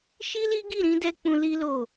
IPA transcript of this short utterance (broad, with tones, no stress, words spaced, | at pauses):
ʃi˦li˦ɡi˦˨ ɾĩ˧dɛ˧ k͡pũ˧li˦lo˦˨